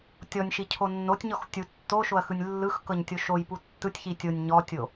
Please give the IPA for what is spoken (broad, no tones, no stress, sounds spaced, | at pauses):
tʲ ɔ nʲ ʃ i cʰ o nː o tʲ ɲ ɔ x tʲ u tː o ʃ o ɐ̯ x ɯ nʲ lː ɯ x k ɤ ɲ tʲ o ʃ o j p u tː ɯ tʲ ç i tʲ o nʲ ɲ ɔ tʲ o